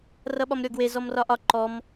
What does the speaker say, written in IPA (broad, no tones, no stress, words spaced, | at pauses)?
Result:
rʌɓɒmɾʲɔɡwe zɔmrɒʔɒ ǃɔm